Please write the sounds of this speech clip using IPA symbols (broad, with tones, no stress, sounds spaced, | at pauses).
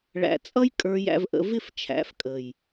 ɭ æ̰˨ t͡sʼ ʌ˧ j kʼ ə˞˧ j æ̰˧ v ʔ ə̰˧ v ɪ˦˨ f t͡ʃʰ æ̰˨˦ f kʼ ə˨ j